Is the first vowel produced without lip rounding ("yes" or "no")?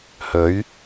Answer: no